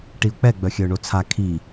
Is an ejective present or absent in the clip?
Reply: absent